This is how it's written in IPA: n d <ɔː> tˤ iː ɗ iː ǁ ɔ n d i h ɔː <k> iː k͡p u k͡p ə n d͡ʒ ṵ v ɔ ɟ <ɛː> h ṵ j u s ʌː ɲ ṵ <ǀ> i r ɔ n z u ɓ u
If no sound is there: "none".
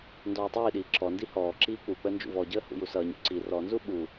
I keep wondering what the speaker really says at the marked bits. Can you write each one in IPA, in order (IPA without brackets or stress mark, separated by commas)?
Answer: ɔː, ǁ, əː, ǀ